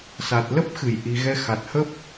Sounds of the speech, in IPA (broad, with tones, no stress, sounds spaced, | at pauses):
s a˨˩ t̚ l ə˦˥ p̚ x ɨ˧˩ j ʔ i˨˩ ɣ ɛ˧ x a˨˩ t̚ h ə˦˥ p̚